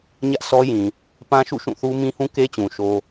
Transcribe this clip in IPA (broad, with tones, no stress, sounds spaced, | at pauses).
ɲ ä˦ ʔ s ɔ˦ j ĩ˨ | p ã˦ ʃ ṵ˦˨ ʃ ũ˦˨ θ u˦ m ĩ˦ h ũ˦ k e˦ t͡ɕ ũ˨ ʃ o˦